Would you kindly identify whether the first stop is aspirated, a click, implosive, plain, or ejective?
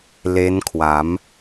aspirated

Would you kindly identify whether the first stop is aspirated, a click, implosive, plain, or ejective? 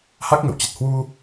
plain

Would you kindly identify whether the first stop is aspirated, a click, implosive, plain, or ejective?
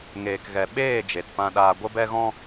plain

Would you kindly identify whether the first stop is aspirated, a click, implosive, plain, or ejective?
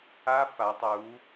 plain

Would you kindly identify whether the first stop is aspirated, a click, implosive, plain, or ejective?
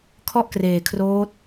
aspirated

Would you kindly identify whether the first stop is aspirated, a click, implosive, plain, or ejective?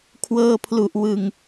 aspirated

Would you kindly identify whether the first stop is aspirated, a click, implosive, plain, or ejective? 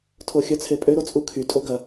aspirated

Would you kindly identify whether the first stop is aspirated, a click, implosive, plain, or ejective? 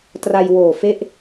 plain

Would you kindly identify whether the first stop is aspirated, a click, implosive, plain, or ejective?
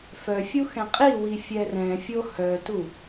ejective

